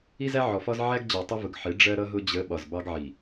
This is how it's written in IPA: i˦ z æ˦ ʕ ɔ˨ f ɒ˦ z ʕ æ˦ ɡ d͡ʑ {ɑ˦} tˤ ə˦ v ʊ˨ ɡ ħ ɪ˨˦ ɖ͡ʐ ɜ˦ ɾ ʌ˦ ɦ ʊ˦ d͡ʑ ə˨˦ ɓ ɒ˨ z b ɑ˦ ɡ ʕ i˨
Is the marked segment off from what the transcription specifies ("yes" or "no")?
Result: yes